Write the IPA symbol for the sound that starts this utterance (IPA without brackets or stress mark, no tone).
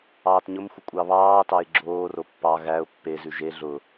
ɑː